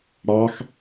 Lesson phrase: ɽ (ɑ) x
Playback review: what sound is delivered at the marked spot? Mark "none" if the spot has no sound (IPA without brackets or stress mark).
ɑ